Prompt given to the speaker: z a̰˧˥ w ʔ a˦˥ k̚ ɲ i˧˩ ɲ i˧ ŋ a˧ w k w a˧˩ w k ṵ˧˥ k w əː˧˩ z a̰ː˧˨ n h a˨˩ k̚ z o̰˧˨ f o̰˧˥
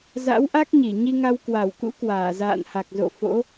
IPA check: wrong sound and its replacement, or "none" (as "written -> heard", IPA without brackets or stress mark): əː˧˩ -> aː˧˩